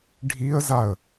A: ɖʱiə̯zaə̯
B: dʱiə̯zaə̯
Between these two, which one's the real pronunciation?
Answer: A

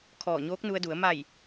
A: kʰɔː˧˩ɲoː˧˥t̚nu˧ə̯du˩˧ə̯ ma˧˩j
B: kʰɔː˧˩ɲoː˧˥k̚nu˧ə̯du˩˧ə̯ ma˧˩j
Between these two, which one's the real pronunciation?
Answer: B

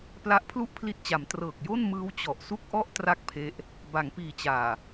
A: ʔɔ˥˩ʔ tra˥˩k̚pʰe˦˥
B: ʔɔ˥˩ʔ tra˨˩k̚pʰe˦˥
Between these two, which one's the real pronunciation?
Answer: A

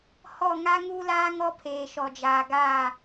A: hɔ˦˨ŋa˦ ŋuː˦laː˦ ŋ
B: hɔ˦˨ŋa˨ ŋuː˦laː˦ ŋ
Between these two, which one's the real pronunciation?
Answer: A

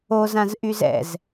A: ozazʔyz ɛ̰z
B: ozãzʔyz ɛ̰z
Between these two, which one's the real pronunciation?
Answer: B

